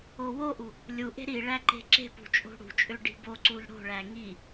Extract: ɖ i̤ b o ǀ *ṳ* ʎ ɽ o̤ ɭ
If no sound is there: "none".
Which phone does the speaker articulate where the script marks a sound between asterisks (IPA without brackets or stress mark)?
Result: u